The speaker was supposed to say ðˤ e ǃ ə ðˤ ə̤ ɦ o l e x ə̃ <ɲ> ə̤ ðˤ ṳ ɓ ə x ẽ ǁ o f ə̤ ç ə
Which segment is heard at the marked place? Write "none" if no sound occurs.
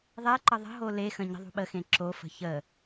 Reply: ɲ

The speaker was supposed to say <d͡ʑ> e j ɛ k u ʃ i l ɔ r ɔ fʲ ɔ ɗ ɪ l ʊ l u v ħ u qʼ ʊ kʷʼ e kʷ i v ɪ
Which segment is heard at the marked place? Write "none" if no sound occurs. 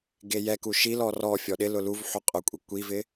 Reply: ɡ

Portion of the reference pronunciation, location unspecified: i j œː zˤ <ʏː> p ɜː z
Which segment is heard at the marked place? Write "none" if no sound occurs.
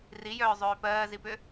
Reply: ʏː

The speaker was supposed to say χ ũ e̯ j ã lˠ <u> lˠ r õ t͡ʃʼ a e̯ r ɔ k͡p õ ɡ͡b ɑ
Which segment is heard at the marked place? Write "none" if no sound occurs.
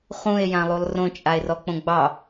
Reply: u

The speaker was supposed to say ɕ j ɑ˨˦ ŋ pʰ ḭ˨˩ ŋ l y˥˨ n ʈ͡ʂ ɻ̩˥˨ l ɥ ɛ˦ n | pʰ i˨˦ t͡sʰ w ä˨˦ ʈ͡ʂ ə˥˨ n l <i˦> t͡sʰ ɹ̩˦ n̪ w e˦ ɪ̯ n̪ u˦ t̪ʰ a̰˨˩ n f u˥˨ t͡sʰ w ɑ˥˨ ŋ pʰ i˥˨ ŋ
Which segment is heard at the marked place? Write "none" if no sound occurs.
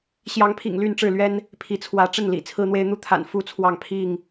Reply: ḭ˨˩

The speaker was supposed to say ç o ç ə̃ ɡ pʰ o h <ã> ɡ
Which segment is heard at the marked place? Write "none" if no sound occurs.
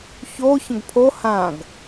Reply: ã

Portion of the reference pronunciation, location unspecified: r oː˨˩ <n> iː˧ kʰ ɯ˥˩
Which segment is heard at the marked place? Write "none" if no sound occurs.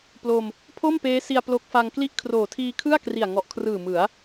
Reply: tʰ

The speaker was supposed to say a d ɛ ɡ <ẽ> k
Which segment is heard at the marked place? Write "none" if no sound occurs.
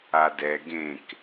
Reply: ẽ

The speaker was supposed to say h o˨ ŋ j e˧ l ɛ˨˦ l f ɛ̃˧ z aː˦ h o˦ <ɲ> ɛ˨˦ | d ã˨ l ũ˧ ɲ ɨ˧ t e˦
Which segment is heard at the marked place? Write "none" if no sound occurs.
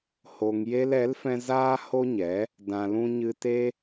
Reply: ɲ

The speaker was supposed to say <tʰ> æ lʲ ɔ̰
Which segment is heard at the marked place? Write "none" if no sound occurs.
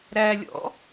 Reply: ɾ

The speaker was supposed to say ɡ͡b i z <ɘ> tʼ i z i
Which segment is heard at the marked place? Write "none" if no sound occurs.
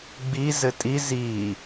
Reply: ɘ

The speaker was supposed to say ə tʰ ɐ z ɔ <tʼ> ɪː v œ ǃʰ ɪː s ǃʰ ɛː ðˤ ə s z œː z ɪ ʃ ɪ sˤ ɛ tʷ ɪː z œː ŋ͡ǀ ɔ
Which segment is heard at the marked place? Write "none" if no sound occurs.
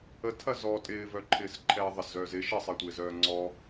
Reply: tʼ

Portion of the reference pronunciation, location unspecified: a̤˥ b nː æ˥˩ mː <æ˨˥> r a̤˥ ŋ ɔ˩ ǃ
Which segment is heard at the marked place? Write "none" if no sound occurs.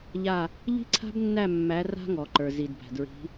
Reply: æ˨˥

